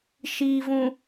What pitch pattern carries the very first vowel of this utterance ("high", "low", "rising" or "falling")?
low